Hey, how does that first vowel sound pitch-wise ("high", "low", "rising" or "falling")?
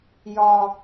low